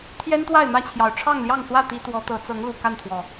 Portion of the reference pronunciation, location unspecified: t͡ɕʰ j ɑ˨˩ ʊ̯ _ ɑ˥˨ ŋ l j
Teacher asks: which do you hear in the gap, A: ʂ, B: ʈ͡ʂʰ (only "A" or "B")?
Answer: B